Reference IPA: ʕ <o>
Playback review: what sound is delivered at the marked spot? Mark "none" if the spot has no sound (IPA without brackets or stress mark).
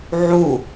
u